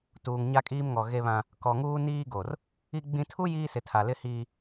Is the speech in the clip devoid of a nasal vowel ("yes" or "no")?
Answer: no